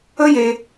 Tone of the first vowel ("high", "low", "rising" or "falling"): high